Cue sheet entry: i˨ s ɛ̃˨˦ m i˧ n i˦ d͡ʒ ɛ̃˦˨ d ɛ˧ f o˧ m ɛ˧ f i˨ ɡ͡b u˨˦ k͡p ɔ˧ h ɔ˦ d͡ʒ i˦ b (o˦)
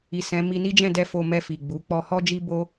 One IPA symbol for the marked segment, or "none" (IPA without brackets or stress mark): o˦